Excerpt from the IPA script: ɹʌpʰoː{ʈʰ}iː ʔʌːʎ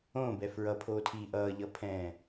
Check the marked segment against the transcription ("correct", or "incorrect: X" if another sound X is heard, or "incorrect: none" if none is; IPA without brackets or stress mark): incorrect: tʰ